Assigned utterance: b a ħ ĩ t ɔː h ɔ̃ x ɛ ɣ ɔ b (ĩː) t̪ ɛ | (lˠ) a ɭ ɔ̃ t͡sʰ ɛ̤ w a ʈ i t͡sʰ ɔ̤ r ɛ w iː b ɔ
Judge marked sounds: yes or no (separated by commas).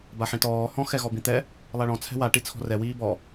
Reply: no, yes